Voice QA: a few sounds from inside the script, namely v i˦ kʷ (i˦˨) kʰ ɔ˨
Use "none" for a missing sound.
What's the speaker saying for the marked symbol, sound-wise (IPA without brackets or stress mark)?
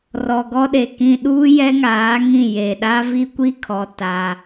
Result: i˦˨